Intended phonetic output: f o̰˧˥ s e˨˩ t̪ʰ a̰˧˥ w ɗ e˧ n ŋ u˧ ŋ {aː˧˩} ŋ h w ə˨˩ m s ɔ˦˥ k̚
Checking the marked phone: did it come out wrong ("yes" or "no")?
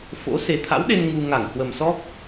yes